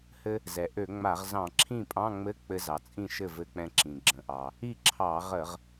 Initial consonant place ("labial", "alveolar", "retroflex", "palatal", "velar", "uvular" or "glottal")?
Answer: glottal